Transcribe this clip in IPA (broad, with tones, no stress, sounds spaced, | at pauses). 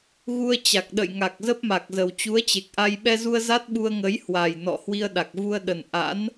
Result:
ɣ u˧ ə̯ t͡ɕ a˨˩ k̚ ɗ ə̰˧˨ j ŋ a˨˩ k̚ z ə˦˥ p̚ m a˨˩ k̚ z ə˨˩ w t͡ɕ u˨˦ ə̯ t͡ɕ e˨˩ k̚ ʔ a˧ j ɓ ɛ˧ z u˧ ə̯ z a˦˥ t̚ ɓ u˧ ə̯ ŋ ə˨˦ j h w a˨˩ j n ɔ̰˧˨ h w i˧ ə̯ ɗ a˨˩ k̚ v u˧ ə̯ ɗ ə˨˩ n ʔ a̰˧˥ n